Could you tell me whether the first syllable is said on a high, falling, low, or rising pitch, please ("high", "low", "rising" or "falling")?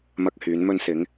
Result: high